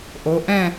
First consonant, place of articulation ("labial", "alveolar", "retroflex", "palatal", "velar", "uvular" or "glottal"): glottal